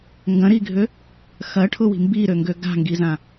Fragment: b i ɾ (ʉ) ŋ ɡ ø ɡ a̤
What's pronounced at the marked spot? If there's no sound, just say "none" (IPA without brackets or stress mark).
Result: ø